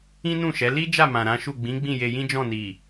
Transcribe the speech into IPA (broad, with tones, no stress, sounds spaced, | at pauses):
ĩ˦ n ũ˦˨ ʃ ɛ˨˦ l i˦ d͡ʒ a˦˨ m ã˨ ɾ ã˨˦ ʃ u˦˨ ɡ͡b ĩ˨˦ ɡ͡b ĩ˦˨ j e˧ j ĩ˦ d͡ʒ ɔ̃˦˨ n i˨